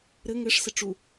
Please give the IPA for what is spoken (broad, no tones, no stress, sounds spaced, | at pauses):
ɾ ɘ ŋ ɘ ʂ s ɘ ʈ͡ʂ u